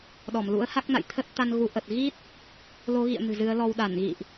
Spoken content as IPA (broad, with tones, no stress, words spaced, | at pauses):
ɗɔ˧˩mlṵ˧˥ə̯ha˦˥k̚na̰˧˨j t̪ʰə˦˥t̚t̪a˧n ɣu˧ʔə˨˩t̚ ɣi˦˥t̚ | lo˨˦ɣḭ˧˨ə̯ nɨ̤˨˩zɨ˨˦ə̯lɔ˧w ɗa˧˩nɣḭ˧˨ʔ